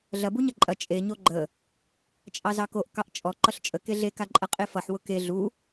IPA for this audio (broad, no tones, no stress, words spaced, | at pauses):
ɮɐbu ɲɐǃʼɐ t͡ʃʼeɲo ɡ͡ǃə | t͡ʃʼɑzɑkoʔ kɑʔt͡ʃʼɔ ǃʌɬt͡ʃʼə keɮekaǃʼɐ qʼefʌħwʊ ke ɮu